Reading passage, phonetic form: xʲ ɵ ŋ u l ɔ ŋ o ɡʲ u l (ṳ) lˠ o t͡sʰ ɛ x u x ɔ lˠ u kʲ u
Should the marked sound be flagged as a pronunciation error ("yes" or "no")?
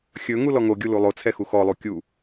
yes